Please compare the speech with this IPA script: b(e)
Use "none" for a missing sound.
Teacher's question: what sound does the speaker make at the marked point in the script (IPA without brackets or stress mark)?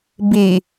i